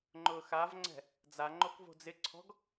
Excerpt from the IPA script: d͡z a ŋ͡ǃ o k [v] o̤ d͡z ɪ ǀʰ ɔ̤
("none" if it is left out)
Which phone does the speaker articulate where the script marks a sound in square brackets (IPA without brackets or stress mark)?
v